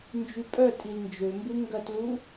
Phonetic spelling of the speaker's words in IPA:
nd͡ʒypʼœ tʼilnd͡ʒømbu ŋɡɐtlu

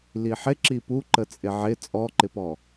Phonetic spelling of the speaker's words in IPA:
liħɪ ǁipuǃə t͡sʼɪʕɪ t͡sʼɔǃɪpɔ

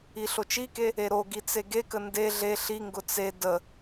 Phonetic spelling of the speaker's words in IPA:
iɬot͡ʃike | eɾoɡi t͡seɡekə nde ɮe ɬiŋɡʊ t͡se də

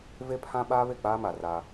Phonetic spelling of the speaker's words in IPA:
ve˦pʰã˦ ɓaː˦βe˦˨k͡paː˦ma˨ ra˦

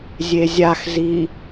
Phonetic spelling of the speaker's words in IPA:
zʲezʲaxzi

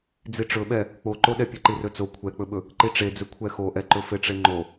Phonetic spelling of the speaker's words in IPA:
d͡ziʈ͡ʂɵɓɛ | k͡poǃoɗɛ pʲɵǃirɵt͡so kʷʰɛk͡pɵɓɵ | ǃiʈ͡ʂed͡zɵ kʷʰɛxoʔɛǃɵ feʈ͡ʂeŋ͡ǃo

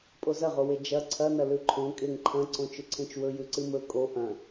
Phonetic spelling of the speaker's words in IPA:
pʼozɐʁowe d͡ʒɐ ǀʰɐnɐ lʉǃʰõ kʼeŋǃʰɐ̃ ǀõt͡ʃɵǀʰẽt͡ʃwɵ jʉǀɨmɵ kʼo ʔɐ̃

